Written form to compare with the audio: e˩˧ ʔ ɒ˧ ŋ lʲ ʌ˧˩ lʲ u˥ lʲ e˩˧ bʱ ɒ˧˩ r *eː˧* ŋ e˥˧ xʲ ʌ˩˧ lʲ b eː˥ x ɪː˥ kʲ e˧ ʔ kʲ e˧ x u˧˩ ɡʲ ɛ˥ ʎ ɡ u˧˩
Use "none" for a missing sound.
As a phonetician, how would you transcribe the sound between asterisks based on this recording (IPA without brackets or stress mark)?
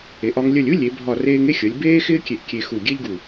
eː˧